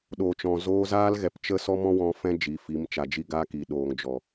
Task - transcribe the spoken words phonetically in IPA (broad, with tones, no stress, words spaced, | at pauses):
ɗo˨t͡ʃɔ̃˨ zoː˧zaː˦lɣɛ˨˦p t͡ʃə˦sɔ˦mɔ̃˦wɔ̃˧ fɛ̃˧ d͡ʒi˨˦fi˨˦m t͡ʃa˨d͡ʒi˧ ɡa˧ki˨ ɗoː˨ŋd͡ʒɔ˨